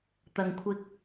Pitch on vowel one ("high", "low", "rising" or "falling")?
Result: low